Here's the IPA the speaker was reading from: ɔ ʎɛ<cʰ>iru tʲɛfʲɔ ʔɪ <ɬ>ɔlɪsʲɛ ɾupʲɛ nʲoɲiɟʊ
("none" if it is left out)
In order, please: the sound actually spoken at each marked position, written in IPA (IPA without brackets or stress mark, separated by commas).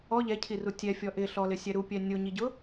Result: cʰ, ɬ